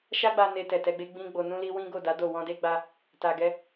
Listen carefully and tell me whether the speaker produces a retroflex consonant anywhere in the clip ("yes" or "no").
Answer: no